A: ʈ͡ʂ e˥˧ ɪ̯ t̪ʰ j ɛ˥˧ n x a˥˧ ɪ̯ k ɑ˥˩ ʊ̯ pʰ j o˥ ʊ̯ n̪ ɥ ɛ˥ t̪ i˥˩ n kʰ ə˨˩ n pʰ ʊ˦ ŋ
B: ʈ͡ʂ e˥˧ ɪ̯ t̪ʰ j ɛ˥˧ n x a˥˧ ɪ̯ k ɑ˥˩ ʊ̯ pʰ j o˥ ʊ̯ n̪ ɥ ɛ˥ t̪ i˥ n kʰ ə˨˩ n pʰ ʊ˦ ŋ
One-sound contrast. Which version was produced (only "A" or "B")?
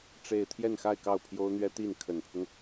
A